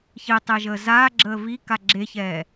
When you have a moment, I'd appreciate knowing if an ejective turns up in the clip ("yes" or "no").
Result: no